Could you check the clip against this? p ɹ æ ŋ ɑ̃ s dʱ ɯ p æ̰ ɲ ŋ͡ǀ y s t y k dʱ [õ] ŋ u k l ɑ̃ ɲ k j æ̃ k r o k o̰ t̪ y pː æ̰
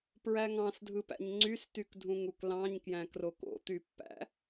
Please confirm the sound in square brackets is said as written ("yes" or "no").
no